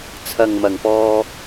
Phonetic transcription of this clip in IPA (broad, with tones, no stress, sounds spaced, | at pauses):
t͡sʰ ɐ˨ ŋ m ɐ˨˩ ŋ p ɔː˧